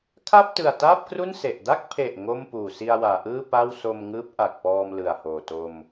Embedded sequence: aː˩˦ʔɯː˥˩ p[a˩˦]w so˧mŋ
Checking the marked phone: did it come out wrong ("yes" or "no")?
yes